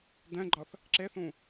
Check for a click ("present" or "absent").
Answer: present